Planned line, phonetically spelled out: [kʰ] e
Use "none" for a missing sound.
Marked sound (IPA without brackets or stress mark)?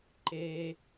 ǃ